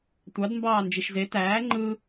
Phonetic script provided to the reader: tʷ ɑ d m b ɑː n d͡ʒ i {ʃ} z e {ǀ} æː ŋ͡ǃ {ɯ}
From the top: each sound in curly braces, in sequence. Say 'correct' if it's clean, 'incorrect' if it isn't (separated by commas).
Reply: correct, incorrect, correct